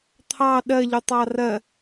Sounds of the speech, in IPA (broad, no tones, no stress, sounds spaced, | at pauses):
t̪ʰ ɑ ɗ ɜ ʎ u tˤ ɑ r ɜ